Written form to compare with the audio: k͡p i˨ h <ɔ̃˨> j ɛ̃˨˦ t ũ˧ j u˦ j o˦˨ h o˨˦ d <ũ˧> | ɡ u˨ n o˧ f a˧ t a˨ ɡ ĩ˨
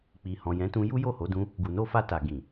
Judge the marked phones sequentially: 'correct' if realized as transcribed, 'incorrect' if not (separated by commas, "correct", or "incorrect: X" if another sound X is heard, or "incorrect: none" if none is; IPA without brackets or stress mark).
correct, correct